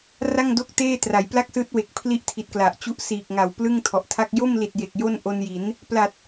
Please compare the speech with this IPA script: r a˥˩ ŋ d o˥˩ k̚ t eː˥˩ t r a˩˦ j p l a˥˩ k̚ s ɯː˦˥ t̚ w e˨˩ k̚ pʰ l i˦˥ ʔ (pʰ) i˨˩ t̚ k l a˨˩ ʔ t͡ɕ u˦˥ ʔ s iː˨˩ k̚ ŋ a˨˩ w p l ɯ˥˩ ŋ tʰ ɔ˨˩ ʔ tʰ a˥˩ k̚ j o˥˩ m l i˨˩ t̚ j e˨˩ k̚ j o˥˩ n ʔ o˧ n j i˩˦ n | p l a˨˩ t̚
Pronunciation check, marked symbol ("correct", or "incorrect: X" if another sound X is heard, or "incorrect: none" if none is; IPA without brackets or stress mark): incorrect: tʰ